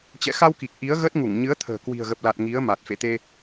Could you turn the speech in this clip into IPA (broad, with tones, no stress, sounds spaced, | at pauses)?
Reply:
t͡ɕ ɛ̰˧˨ x a˧ w k i˨˩ k̚ ʔ i˨˦ ə̯ ɣ ə˦˥ t̚ ŋ u˧˩ ŋ ɲ ɨ˨˦ ə̯ t̪ʰ ə̤ː˨˩ k w i̤˨˩ ə̯ ɣ ə˨˩ p̚ l a˨˩ t̚ ŋ i˨˦ ə̯ m a˨˩ t̚ f ḛ˧˨ t̪ e˧